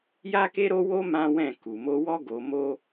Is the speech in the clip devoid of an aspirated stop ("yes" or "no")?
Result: yes